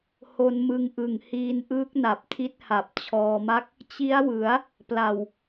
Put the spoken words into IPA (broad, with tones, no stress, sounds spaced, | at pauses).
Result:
h o˧ n m ɯ˧ ŋ ʔ ɯ˨˩ ŋ h iː˧ n ʔ ɯː˦˥ k̚ n a˨˩ p̚ tʰ i˦˥ t̚ h a˨˩ p̚ t͡ɕʰ ɔː˧ m a˥˩ k̚ | t͡ɕ i˦˥ a̯ w ɯ˩˦ a̯ | p l a˨˩ w